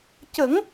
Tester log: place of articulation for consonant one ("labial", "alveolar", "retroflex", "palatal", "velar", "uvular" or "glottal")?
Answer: palatal